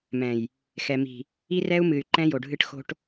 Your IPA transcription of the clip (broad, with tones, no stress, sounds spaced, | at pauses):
m ɛ̃˨ j | x ɛ˨ m i̤˨ | i˦ r ɛ˦ u̯ m ɨ˨ y̯ ǃ ɛ̃˦ j o˨ ɖʱ ɨ˦ ʈ x o̤˦ ʈ